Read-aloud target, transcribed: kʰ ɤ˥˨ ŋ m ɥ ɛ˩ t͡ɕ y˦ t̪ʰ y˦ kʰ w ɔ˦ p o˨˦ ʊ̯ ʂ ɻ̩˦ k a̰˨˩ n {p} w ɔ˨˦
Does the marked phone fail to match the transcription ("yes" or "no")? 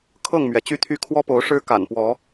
no